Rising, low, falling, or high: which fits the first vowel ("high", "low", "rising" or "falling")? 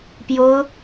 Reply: high